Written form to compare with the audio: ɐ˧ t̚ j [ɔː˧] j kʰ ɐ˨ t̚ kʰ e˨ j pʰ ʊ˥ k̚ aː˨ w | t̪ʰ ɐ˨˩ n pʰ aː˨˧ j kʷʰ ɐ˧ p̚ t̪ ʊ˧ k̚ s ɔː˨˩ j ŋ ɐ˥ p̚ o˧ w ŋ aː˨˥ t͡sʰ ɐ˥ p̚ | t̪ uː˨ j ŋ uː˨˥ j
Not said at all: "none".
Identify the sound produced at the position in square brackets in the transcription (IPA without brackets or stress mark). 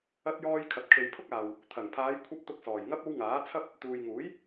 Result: ɔː˧